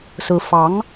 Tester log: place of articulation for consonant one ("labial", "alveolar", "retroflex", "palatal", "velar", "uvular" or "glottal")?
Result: alveolar